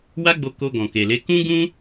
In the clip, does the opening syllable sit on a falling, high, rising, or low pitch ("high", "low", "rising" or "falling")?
high